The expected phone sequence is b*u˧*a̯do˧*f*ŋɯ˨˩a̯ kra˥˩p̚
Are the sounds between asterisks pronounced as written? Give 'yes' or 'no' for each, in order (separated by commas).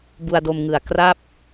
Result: yes, no